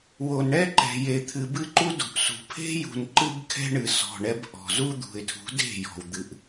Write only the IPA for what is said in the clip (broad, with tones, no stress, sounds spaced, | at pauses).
w o˨ n ɳ ɛ˦ ǃ ɛ̤˨ j e˨ t̪ʰ ɨ˨ b ɨ˦ ǃ u˦ d ṳ˨ ʔ s ṳ˨ pʰ e̤˦ j ṳ˨ n ǃ ɨ˦ b kʰ ɛ̤˦ ɳ ɨ˨ s ɔ̤˨ ɳ ɛ˦ b ʔ ɔ̤˨ z u˦ d̪ ṳ˨ ɪ̯ tʰ ṳ˨˦ d e̤˦˨ j ɔ̤˨ w d̪ ɨ˨ ʔ